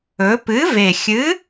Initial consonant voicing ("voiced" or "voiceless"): voiceless